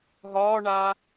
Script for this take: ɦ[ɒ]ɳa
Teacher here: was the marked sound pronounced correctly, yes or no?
no